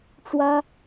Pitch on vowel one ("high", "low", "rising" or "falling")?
high